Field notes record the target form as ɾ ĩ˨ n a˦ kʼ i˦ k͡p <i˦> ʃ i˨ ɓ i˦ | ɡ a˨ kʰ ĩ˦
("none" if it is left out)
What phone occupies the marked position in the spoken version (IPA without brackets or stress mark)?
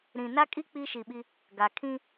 i˦